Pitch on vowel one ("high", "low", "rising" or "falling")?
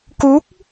rising